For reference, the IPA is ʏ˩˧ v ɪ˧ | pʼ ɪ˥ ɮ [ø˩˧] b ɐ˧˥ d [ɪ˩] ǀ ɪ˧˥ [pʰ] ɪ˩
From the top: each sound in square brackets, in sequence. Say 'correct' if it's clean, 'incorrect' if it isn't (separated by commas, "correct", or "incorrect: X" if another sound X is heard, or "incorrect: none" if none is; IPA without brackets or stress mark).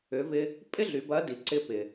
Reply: incorrect: y˩˧, incorrect: i˩, incorrect: p